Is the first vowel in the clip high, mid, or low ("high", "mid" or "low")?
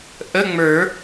mid